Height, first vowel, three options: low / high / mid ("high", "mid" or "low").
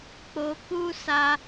mid